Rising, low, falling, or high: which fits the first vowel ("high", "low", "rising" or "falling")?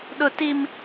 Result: high